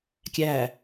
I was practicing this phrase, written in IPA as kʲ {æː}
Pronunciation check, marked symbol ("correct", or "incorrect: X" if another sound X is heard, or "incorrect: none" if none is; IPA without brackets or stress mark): incorrect: æ